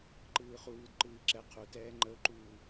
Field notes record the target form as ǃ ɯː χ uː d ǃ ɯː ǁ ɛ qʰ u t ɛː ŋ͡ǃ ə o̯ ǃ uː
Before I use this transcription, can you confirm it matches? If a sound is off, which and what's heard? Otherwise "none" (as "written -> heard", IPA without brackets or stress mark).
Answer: none